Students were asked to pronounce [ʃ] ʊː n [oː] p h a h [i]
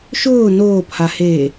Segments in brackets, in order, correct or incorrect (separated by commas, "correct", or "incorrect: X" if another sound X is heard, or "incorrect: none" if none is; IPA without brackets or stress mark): correct, correct, incorrect: e